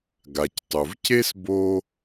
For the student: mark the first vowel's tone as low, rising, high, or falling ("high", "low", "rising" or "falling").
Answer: low